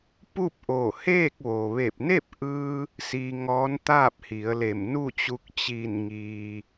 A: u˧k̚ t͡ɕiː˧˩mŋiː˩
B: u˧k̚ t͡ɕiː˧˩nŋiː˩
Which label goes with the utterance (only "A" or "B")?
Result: B